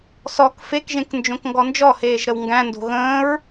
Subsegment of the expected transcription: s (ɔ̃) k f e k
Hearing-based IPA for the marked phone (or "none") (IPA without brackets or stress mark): ɔ